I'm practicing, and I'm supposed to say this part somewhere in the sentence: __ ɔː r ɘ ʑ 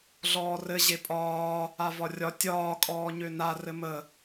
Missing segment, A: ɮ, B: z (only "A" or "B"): A